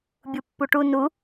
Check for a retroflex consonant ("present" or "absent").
present